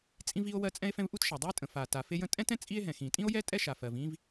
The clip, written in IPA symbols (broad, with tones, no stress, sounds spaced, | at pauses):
t͡sʼ ĩ˥ v i˥ o̯ w ɜ˥ t͡sʼ ɛ̃˥ e̯ f ɛ̃˥ v ʔ u˥ t ʃ a˩ dˤ u˥ e̯ tʼ ə̃˩ f a˩ t a˩ f e˥ j ə̃˥ tʼ ɛ̃˥ t ɛ̃˥ t͡sʼ i˥ e̯ ɦ ɛ̃˩ x ĩ˩ tʼ ĩ˥ o̯ j ɛ˥ tʼ ɛ˥ ʃ a˩ f ɜ˩ v ĩ˥ v